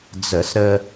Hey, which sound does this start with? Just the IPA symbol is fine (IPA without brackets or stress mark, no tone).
d͡z